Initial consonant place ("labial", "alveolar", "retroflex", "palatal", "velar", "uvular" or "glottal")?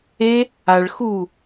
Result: retroflex